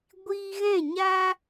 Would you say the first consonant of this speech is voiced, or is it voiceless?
voiced